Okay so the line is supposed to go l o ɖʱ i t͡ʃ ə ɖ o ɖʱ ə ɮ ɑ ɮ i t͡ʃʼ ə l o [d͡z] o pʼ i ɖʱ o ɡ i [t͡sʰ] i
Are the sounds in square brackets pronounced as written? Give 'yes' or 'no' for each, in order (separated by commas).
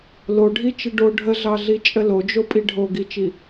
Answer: no, no